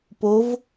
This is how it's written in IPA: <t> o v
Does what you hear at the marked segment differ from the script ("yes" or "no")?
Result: yes